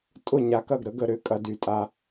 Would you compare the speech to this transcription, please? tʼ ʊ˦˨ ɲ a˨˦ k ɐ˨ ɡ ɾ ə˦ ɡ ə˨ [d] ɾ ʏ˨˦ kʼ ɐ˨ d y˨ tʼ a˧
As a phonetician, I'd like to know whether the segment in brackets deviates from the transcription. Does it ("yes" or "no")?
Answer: yes